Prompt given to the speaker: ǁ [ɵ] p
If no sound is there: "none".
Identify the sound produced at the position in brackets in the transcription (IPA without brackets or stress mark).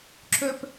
ɵ